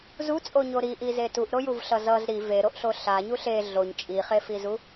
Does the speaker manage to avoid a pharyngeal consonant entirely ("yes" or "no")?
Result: yes